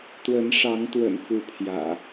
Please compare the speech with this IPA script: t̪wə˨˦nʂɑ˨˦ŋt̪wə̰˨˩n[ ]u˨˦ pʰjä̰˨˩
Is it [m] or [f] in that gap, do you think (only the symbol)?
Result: f